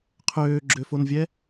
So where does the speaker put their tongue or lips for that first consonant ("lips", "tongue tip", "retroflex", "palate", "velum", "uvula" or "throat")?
uvula